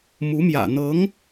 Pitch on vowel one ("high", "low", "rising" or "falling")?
rising